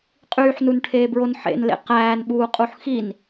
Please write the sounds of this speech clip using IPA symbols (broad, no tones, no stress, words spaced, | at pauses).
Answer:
qʼyːħnunʈʰeːbɹon ħḛnlḛ qæːnɓuːqʼuħ xin